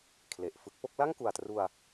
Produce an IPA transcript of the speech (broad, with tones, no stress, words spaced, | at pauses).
kʰle˨˩ʔfɯ˦˥k̚ po˥˩k̚ la˥˩ŋku˨˩a̯tru˧a̯